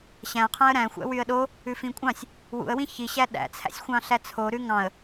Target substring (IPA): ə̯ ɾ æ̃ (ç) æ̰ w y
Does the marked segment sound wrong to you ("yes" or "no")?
yes